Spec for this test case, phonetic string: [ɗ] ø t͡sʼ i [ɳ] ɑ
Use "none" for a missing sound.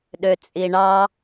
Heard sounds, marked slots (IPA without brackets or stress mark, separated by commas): ɗ, ɳ